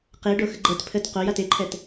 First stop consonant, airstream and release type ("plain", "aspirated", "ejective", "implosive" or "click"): plain